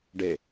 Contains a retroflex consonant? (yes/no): yes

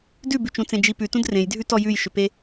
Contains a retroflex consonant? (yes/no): no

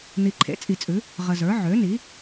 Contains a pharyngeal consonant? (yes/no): yes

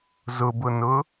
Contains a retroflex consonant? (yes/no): no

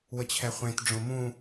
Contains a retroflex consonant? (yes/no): yes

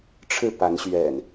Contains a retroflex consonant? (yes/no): yes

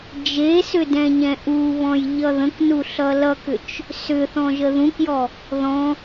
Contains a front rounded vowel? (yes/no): yes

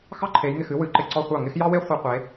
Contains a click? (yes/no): yes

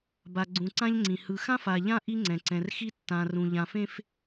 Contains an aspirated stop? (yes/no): no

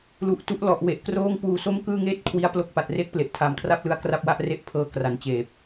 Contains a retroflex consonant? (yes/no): no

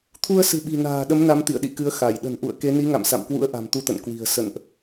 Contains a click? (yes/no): no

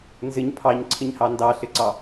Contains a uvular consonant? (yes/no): no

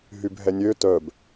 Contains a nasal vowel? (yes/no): no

